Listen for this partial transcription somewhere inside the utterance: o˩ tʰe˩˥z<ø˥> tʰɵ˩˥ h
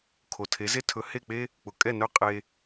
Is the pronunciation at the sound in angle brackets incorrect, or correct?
incorrect